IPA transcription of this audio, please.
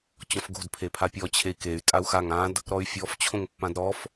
t͡ɕ ɔ̃ f ɡ o̤ d pʰ e pʰ a pʲ ɔ t͡ɕʰ e i̯ k e y̯ tʼ a u̯ x a ŋ ã d | ɾ ɔ y̯ fʲ ɔ f t͡ɕʰ õ ŋ pː ã d ɾ ɔ f

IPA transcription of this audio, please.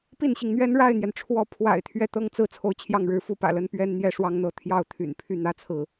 p i˥˩ n ɕ i˩ ŋ n̪ ɥ ɛ˥ n ɻ a˥˩ ɪ̯ n̪ j ɛ˩ n ʈ͡ʂʰ w ɔ˧˥ pʰ w a̰˨˩ ɪ̯ t̪ʰ ɥ ɛ˥˩ t̪ ɤ˥ ŋ t͡s ɹ̩˥˧ t͡sʰ o˥˧ ʊ̯ t͡ɕʰ j ɑ˥˩ ŋ ɻ ɻ̩˧˥ f u˧˥ p ä̰˨˩ l ə˧˥ n p ɥ ɛ˥ n n̪ j ɛ˥˩ ʂ w ɑ˥ ŋ n̪ ɤ˧˥ t̪ʰ j ɑ˥˩ ʊ̯ t̪ʰ y̰˨˩ n pʰ y˥˩ n̪ ä˥ t͡sʰ ɹ̩˥˩

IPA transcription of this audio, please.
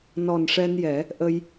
n ɔ˨˩ n ʂ ɛ˧ n j ɛ˨˩˦ | ʔ ə˧ j

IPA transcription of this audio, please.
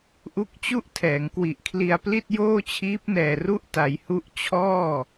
ʔ u˦˥ k̚ t͡ɕ u˥˩ ʔ tʰ ɛː˩˦ ŋ k w i˨˩ ʔ kʰ l i˧ a̯ p l i˥˩ t̚ j oː˥˩ t͡ɕʰ iː˦˥ p̚ n ɛː˨˩ r u˦˥ ʔ t a˩˦ j h u˦˥ ʔ t͡ɕʰ ɔː˥˩

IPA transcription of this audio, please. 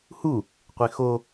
h u | qʷ e x o

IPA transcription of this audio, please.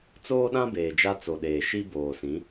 t͡s oː˦ ɗ ã˦ b eː˨ d͡ʒ a˦ t͡s o˨ ɗ eː˨ ʃ i˦ b oː˨ s ĩ˨˦

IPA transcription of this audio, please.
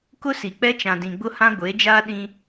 k ʊ˦ s i˨ k͡p ɛ˦ t͡ʃ ã˨ d ĩ˨ ɡ͡b ʊ˦ h ã˦ ɡʷ e˨˦ d͡ʒ aː˦ ɗ ĩ˦

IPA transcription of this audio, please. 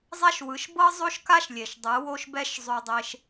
zˤ a˦ ʃ w ɯ˨˦ ʃ b ɤ˦ zˤ o˦ ʃ k a˦ ʃ lʲ e˨ ʃ dˤ ɯ˨˦ w o˦ ʃ b ɛ˦ ʃ zˤ o˧ dˤ e˧ ʃ

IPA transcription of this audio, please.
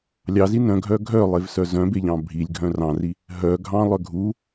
lʲ ɑ z i n œ̃ ɡʱ œ ɡʱ œ lˠ e v s œ z œ̃ b e ʎ ɑ̃ bʱ i lʲ ɡʱ œ̃ r ɑ̃ r i | ɦ œ ɡʱ ɑ̃ lˠ œ ɡʱ u

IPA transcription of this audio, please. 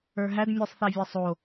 ə˞ ɦ æ d mʲ ɛ sˤ θ æ vʲ æ sˤ o

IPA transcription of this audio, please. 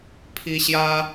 pʰ i˥ ɕ j ä˥

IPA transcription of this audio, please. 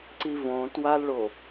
ǀ i v õ t w a l ɭ o

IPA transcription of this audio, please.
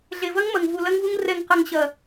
ɮ e˨ v ɐ˦ ŋ m ɐ˨ ŋ v u˨ l ɐ˧ ŋ v u˧ ŋ r ɛ˨ ŋ q ɐ˨ ŋ ɕ ɐ˨

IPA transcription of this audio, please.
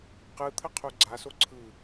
q ɯ t̪ʰ ə qʰ u ɡ͡ǀ a s o ǀʰ ɯ

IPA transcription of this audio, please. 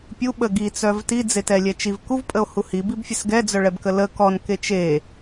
pʲ u ɓ ə ɡ i t͡s œ v t i d͡z e t ɛ lʲ ɛ t͡ʃ i v k u v pʼ ə o̯ h u h i b i b fʲ ɛ s ɡ ɛ d͡z œ ɭ ɛ b k ə l ə k ɔ n k e t͡ʃ e

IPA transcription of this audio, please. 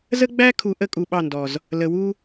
z ə˦ ɡ͡b æ˦ kʰ u˨ ʔ ə˦ kʼ u˨ ɓ ɑ˦˨ n d ɔ˨ z | l ə˨ w u˦

